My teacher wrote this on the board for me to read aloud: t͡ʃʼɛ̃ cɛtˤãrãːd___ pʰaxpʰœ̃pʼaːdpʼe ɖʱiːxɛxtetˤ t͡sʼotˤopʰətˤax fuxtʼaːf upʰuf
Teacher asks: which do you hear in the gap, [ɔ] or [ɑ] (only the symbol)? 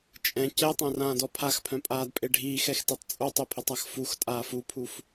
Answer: ɔ